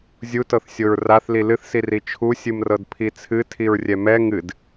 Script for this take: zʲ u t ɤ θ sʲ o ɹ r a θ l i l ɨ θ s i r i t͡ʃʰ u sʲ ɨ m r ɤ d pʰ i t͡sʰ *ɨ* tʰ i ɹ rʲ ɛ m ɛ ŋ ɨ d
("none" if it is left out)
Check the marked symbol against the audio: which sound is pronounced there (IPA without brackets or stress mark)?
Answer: ɨ